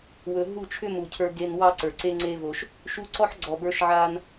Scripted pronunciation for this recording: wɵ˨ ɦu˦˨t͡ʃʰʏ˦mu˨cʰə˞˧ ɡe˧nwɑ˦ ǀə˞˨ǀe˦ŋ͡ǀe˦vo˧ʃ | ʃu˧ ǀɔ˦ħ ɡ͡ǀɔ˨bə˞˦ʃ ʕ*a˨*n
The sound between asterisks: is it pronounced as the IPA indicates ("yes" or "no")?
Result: no